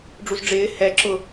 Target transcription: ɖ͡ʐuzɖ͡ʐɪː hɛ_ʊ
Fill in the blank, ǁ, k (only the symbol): ǁ